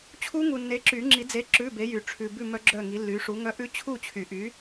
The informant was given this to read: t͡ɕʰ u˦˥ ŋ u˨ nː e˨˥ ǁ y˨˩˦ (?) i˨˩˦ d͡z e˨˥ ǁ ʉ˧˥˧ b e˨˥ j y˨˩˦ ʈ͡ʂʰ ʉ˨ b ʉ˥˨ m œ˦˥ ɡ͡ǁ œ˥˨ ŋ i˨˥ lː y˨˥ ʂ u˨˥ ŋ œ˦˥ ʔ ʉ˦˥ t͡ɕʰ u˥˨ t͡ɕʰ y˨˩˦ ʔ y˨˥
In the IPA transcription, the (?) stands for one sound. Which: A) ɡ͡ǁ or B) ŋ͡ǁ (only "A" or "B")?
B